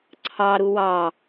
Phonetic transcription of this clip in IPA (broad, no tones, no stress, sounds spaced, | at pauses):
ǀʰ ɑ ɾ u w ɑ